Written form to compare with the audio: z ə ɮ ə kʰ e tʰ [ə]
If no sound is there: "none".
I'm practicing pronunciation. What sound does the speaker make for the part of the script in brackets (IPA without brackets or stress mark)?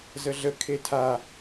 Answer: a